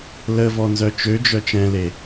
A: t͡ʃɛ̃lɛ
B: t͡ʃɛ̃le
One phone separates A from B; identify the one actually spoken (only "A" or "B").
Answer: B